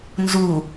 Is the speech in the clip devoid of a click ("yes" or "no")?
yes